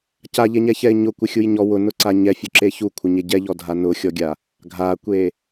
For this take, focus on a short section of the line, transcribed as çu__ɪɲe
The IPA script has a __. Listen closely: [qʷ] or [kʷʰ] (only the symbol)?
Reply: kʷʰ